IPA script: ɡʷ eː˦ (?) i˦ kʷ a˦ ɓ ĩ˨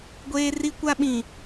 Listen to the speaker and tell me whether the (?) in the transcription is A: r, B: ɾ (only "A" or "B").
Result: A